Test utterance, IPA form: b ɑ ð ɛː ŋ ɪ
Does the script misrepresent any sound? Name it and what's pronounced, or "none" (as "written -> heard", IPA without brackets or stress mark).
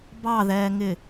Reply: none